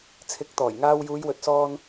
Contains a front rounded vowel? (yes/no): no